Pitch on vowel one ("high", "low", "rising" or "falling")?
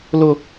high